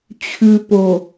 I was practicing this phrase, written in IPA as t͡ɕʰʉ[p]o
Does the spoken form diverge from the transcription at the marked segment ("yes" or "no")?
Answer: no